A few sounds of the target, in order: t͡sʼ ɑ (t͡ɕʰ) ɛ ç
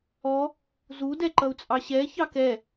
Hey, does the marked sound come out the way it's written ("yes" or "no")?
no